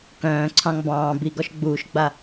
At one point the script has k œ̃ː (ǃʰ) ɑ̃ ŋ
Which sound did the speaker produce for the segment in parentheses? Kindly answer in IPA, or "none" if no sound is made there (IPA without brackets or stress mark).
ǀʰ